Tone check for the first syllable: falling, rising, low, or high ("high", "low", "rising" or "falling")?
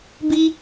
high